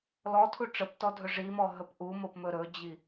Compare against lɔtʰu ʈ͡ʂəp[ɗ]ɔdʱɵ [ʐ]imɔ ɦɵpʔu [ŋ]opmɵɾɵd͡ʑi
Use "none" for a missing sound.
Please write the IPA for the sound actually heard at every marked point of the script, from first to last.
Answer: t, ʐ, m

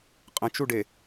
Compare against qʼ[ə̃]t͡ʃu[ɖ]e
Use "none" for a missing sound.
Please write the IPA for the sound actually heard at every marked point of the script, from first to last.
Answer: ə̃, ɖ

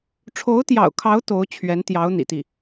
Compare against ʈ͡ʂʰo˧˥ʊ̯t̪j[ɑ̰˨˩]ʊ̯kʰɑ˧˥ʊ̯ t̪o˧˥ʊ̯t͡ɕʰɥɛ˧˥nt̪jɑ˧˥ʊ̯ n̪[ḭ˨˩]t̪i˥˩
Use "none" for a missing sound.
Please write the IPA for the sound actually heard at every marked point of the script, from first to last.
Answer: ɑ̰˨˩, ḭ˨˩

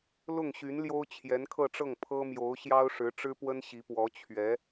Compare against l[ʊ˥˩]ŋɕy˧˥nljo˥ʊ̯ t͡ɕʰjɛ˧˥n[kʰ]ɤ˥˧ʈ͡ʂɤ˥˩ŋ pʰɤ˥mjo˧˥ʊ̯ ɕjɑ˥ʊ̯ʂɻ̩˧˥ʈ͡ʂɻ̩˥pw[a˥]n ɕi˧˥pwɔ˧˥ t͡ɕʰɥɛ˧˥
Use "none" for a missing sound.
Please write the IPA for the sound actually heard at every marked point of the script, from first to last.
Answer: ʊ˥˩, kʰ, ə˥

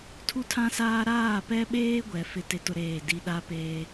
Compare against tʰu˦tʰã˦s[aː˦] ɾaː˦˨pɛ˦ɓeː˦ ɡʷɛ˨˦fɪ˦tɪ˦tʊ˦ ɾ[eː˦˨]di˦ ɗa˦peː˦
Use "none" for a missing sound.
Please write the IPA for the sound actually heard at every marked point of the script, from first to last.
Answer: aː˦, eː˦˨

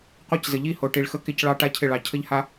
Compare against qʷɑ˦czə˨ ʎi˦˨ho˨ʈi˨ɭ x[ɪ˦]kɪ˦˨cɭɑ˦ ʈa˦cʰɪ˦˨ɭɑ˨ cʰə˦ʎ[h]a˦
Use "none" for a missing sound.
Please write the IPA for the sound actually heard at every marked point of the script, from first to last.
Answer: ə˦, h

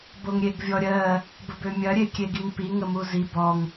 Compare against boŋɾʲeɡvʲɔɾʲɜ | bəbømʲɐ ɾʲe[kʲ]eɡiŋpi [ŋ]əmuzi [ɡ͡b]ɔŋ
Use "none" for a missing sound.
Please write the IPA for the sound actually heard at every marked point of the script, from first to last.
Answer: kʲ, ŋ, b

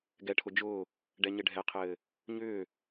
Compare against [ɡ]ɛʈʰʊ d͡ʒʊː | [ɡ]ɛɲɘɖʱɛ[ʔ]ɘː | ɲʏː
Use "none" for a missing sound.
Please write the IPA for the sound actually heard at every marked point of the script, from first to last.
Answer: ɡ, ɖ, qʰ

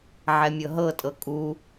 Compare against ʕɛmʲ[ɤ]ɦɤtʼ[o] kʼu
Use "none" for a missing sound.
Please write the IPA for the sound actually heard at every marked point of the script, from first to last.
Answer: ɤ, ɤ

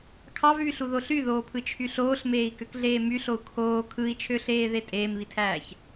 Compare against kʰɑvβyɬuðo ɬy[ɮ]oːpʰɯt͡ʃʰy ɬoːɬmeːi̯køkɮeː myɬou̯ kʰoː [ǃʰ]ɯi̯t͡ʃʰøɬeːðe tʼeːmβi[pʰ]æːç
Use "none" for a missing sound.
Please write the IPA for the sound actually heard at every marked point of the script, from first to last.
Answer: ð, kʰ, tʰ

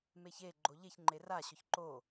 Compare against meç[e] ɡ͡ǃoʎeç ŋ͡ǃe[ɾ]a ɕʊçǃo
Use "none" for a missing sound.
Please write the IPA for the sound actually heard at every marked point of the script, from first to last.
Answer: e, r

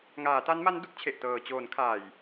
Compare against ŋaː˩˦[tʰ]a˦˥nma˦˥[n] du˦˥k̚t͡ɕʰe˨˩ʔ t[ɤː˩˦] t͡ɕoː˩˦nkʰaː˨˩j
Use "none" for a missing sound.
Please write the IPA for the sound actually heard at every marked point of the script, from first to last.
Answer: t, n, ɤː˨˩

